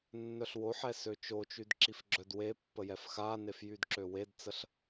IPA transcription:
nː œ ɬ w o ħ ɛ s ø t͡ʃ o t͡ʃ y d ǁ i f ɡ͡ǁ œ d w e pː ə j ɛ f x a n e f j y d ǁ ø w e d t͡s ə ɬ

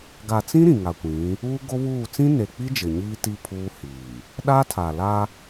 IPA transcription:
ɡ a˨ t͡s ĩ˦ ɾ ĩ˨ ŋ a˨ kʷ ĩ˨˦ | uː˦ ɡ o˦ β uː˦˨ t͡s ĩ˦ n e˨ k͡p i˦ d͡ʒ ɪ˨ ɲ iː˦ t i˦ pʰ uː˦ h iː˨ | ɗ a˦ tʰ a˨ l a˦

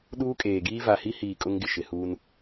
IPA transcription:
ɗ uː˦ kʼ eː˨ ɡ iː˦ v a˨ h i˦ h iː˨ kʼ ʊ˦ ŋ ɡ ɪ˨ ʃ ɪ˨ h uː˦ n

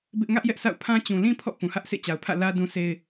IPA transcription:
b ɪ˦ ʔ ŋ ä˦ ʔ j ɛ˦ ʔ sʰ a̰˦˨ ʊ̯ pʰ ã˦ t͡ɕ ũ˨ l ĩ˦ pʰ ɔ̰˦˨ p ũ˨ h ä˦ ʔ sʰ ḛ˦˨ t͡ɕ a˨ ʊ̯ pʰ ä̰˦˨ l ä˦ d ũ˦ sʰ e˦ ɪ̯

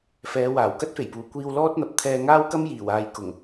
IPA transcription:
f ɛː˨˧ w aː˨˩ w k ɐ˥ t̚ f e˨˩ j p uː˨˩ kʷ iː˧ w l ɔː˥ t̚ n̪ ɐ˨˥ p̚ t̪ʰ ɛː˧ ŋ aː˥ w k ɐ˥ m j iː˨˩ w aː˨ j k ʊ˨˩ ŋ

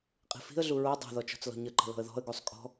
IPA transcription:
qʼ i̤ f i̤ ə̯ ɮ u ɹ o dˤ a̤ ð ɔ t͡ʃ ɔ̤ t͡s l ɔ̤ ɲ ə ǃ ə̤ l ɔ̤ ə̯ ð ɔ̤ ə̯ ɡ u sˤ kʼ ɔ̤

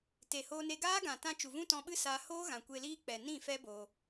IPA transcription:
t e˨ h oː˧ n e˧ ɡ aː˦ ɡ ã˨ t ã˧ t͡ʃ u˨ v ũ˦ t ɔ̃˧ ɓ ɨ˦ s a˧ h oː˦ ɣ ã˨ kʷ e˧ l iː˦ k͡p ɛ˨ n ĩ˦˨ f ɛ˦ b oː˧

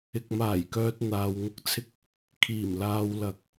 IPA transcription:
ɪ˧ k̚ m aː˨˩ j k œː˨ t̚ n̪ aː˨ w ŋ ʊ˧ k̚ t͡sʰ ɪ˧ k̚ | kʰ iː˨˩ m l aː˨ w l ɐ˨˥ k̚

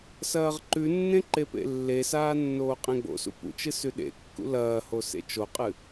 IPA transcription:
s ɐː ʁ ǃ ʉ nː ẽ ǃ e p ḛ lː e s aː nː oː qʼ ẽ ɡ͡b o̰ s ṵ p ṵ t͡ʃ ɨ s ʉ ɗ ḛ kː ṵ l ɐː h o s ḛ t͡ʃ o qʼ ɨ

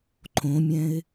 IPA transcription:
ǃʰ õ mʲ ɛ̃ ɪ̯

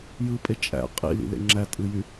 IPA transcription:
j ɯ pʼ e t͡ʃʼ æ̰ qʼ ḭ l ḭ l ḛ ŋ͡ǁ æ tʼ ɯ j y

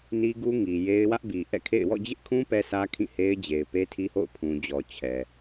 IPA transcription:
n i˦ ɡ u˦ ŋ i˨ j e˦ ɪ̯ w ä˦ ʔ b i˨ ʔ ɛ̰˦˨ kʰ ḛ˦˨ ɪ̯ w ɔ̰˦˨ d͡ʑ ɪ˦ ʔ kʰ ũ˦ p ɛ˦ s ä˦ kʰ ĩ˦˨ h e˦ ɪ̯ d͡ʑ e˨ ɪ̯ p e˦ tʰ i˦ h o̰˦˨ ʊ̯ pʰ ũ˨ d͡ʑ ɔ˨ t͡ɕʰ ɛ˨

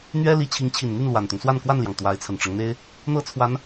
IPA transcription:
n̪ ɥ ɛ˥ l i˧˥ t͡ɕʰ i˧˥ ŋ t͡ɕʰ i˨˩ n n̪ y˥˩ n l w a˨˩ n t̪ ʊ˦ ŋ s w a˥˧ n k w a˥˩ n l j ɑ˩ ŋ t̪ w a˧˥ ɪ̯ t͡sʰ ə˨˩ n ʈ͡ʂ ɤ˦ ŋ n̪ e˥ ɪ̯ | n̪ ɤ˥ t͡sʰ w a˧˥ n

